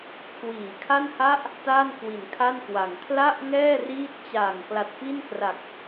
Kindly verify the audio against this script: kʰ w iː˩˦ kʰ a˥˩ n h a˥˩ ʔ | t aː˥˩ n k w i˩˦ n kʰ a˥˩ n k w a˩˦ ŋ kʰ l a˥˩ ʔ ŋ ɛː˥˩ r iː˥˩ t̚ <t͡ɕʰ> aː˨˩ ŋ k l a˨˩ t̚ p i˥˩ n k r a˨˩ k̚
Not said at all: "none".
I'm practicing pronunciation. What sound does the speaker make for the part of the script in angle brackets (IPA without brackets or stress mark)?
t͡ɕ